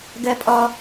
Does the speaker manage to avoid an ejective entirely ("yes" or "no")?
no